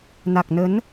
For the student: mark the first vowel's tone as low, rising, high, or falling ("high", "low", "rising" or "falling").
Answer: low